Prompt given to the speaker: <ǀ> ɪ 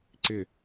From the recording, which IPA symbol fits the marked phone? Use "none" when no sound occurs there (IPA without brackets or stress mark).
ǀ